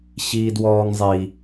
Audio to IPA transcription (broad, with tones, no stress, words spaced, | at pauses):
ɕiː˥dwɔː˥ŋzˤi˦